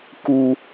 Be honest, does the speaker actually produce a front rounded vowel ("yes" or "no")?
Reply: no